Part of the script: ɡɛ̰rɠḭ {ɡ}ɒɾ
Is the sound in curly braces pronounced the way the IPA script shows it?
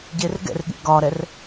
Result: yes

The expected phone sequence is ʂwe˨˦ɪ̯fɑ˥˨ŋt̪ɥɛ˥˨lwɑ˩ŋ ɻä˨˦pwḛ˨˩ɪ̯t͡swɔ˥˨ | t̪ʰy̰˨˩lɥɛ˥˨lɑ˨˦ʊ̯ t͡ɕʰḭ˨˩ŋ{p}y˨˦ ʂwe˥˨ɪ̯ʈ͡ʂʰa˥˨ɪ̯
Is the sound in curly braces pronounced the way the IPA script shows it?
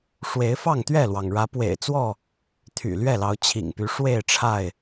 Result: yes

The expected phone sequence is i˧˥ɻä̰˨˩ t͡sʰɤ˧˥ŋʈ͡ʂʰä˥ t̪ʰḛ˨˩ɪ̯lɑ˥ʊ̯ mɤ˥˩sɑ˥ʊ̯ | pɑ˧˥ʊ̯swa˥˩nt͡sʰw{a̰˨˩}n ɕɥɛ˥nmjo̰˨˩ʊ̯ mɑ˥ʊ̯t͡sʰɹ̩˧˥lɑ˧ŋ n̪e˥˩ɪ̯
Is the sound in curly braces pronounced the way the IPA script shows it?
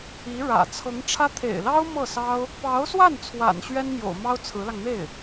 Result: yes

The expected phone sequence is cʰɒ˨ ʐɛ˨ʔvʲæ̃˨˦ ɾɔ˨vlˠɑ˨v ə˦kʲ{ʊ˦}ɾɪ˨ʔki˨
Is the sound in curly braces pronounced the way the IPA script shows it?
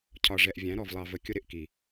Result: yes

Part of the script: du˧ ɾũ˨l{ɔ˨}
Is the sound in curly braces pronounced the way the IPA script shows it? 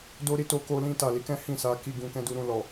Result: yes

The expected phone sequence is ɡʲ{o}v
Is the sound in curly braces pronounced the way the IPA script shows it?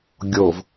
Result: yes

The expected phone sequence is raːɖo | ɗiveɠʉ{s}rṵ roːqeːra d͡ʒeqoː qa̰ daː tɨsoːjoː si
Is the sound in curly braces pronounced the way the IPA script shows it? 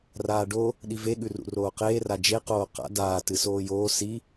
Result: no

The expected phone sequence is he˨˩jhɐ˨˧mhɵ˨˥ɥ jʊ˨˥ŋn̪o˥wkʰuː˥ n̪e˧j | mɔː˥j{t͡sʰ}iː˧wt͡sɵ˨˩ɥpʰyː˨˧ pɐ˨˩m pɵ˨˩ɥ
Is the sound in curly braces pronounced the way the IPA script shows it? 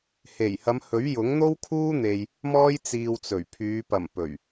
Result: no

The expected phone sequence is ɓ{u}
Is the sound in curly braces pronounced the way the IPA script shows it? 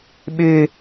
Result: no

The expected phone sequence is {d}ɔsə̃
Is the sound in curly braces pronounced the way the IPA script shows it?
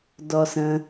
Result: yes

